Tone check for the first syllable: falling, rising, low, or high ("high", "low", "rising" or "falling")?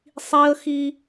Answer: high